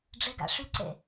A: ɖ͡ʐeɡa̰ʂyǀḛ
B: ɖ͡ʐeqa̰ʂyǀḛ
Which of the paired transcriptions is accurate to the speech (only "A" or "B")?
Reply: A